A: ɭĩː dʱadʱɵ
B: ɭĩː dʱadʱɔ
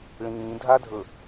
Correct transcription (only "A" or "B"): A